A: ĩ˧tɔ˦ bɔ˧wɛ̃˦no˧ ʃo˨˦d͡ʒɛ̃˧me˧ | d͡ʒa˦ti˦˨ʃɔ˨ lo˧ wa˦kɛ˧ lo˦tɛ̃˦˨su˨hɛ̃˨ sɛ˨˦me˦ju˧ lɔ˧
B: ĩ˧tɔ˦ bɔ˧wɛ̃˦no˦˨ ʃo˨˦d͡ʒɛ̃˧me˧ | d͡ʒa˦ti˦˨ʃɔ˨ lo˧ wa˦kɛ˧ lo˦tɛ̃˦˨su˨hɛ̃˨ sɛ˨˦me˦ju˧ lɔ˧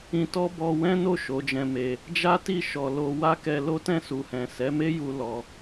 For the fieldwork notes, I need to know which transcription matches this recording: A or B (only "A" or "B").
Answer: B